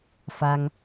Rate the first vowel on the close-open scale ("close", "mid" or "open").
open